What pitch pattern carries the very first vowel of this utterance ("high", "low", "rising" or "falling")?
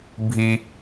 high